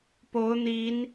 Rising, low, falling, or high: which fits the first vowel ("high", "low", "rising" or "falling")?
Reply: rising